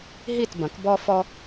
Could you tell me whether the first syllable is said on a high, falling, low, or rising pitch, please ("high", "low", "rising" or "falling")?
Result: falling